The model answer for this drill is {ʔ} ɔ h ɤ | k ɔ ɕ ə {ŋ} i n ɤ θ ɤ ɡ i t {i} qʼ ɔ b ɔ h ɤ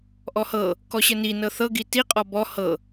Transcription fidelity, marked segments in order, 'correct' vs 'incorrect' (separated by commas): correct, incorrect, correct